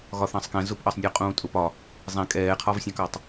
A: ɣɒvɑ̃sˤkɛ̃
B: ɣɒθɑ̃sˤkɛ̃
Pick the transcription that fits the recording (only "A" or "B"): B